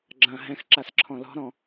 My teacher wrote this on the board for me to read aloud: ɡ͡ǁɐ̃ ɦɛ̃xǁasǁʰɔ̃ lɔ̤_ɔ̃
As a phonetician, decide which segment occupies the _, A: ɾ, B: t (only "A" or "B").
A